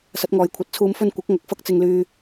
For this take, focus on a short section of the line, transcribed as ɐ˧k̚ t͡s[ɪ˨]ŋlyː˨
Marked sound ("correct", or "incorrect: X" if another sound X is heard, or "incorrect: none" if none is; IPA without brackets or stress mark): correct